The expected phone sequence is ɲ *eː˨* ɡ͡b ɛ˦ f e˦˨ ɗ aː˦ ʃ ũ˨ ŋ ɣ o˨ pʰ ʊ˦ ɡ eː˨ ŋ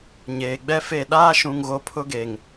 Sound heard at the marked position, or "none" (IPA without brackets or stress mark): eː˨